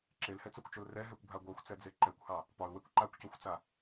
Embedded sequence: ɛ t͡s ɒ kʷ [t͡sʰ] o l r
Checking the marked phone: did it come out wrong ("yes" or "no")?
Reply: yes